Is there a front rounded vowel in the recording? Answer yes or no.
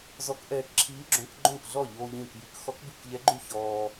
yes